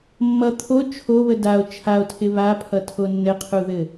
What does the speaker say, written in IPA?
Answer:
mː ʌ t̪ʰ o t͡ʃʰ o β ə d a o̯ t͡ʃʰ a o̯ tʰ ɪ β a pʰ ʌ tʰ o nː ɘ qʰ u ð ɘ

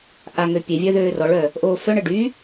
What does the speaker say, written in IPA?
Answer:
ʔ a ŋ ø pʲ e vʲ œ ð øː r ɔ ɭ œ | ʔ oː f œ ɳ ə ɖ y

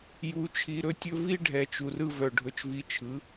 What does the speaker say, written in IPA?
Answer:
j u˨˦ t͡ʃʰ i˧ ɾ ɵ˦ tʲ ɵ˦ v i˦ ɖʱ ɛ˨ t͡ʃ u˨ r ɯ˧ v œ˨ ɖʱ ɵ˧ t͡ʃ v i˧ t͡ʃʰ ɯ˨˦

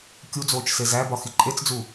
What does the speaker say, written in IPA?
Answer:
kʲ u d͡z oː t͡ʃ s e z æ b ɒ x i ǃʼ e t͡s d͡z u

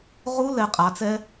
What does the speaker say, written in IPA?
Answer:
ʁ u˦˥ l ɛ˩˧ qʼ a˩˧ t͡s ɛ˦˥

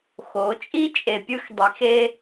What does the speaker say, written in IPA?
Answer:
x o˨˦ t͡ʃʼ i˦ t͡ʃʼ e˨ pʲ ɯ˦ x dˤ i˨˦ x e˦

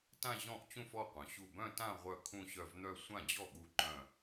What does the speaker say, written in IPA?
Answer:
t ã˥˧ ʑ ɔ̃˥˩ ʔ t͡ɕ ũ˥˧ f ɔ˥˩ qʷ œ̃˩˧ ɕ u˥˩ b œ̃˥˧ t ã˥˧ ʁʷ œ˥˩ kʰ ũ˥˧ ɕ œ˥˩ v n̪ œ˥˧ sʷ ã˥˩ d͡ʑ ɔ˥˩ ɠ u˥˧ ǃ œ̃˥˧

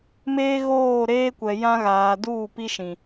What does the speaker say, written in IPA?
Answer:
m eː˦ ɣ oː˦˨ ɾ eː˦ kʷ ɛ˨ j ã˦ ɣ aː˨ d uː˦˨ p i˦ ʃ ĩ˨

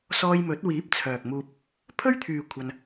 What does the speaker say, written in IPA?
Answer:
s ɔː˧ j m ɵ˨˥ t̚ w iː˨˥ p̚ t͡sʰ œː˨ k̚ m uː˧ p̚ | pʰ ɵ˥ ɥ t̪ʰ yː˨ kʷʰ ɐ˧ n

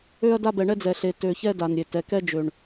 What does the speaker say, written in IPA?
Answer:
ø˦ ɐ̯ d a˦ b ɛ˨ ɳ ɛ˦ d͡z ɛ˨ ɬ e˨ t ø˨ ç ɛ˦ d a˨ n ɾʲ e˨ t ɛ˨ k ɛ˦ d͡ʒ ø˨ ɳ

